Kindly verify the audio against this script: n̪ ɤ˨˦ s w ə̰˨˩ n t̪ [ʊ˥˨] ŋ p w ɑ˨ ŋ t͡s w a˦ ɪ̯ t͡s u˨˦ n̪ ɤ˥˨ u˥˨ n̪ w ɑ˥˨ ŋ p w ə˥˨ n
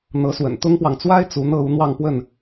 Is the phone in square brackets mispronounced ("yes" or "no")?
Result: yes